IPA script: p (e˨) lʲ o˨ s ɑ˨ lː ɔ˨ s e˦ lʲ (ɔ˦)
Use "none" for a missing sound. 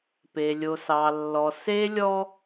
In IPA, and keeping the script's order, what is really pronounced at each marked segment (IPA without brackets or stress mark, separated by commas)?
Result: e˨, ɔ˦